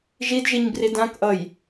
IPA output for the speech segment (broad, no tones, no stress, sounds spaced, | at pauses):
ʒ i d ʒ i ɲ b r i d ã k ʔ ʌ j